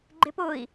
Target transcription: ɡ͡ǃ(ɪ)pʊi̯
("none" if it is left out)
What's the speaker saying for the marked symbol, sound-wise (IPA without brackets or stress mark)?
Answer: ɪ